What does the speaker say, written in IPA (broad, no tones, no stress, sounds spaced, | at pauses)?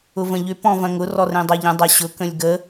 ʊ v ə̃ ʎ ʏ p ɔ̃ v ɐ̃ ŋ ʊ r ɔ r ẽ dˤ ɐ ʎ ə̃ dˤ ɐ ɕ ʊ k ə̃ lʲ ɡ ə